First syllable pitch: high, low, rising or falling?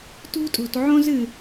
high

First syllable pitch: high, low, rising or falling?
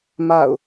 falling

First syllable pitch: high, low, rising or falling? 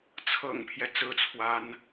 low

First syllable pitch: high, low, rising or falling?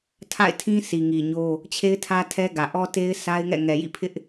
falling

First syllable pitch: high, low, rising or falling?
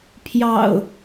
low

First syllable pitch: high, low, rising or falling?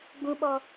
high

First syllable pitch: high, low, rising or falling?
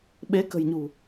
rising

